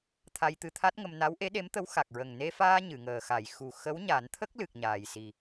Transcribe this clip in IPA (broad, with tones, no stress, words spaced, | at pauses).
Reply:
t̪ʰa˧jt̪ɨ˧t̪ʰa˦˥t̚ŋə˧m na˧˥wʔe˧˥ɗe˧˥mt̪ə˧˥w xa˨˩k̚ɹə˨˩ŋ ne˧faː˧ ɲɨ˨˩˨ŋəː˨˩xa˨˩˨j xu˨˩ xə˧˥wɲa˨˩˦nt̪ʰə˦˥k̚lɨ˨˩k̚ ɲaː˨˩jsi˨˩